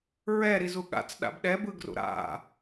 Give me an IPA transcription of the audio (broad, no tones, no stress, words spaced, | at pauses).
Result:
ɹɛɾizu ɠa̰t͡sɗa̰b ɗɛbɯɡrṵ ɾa̰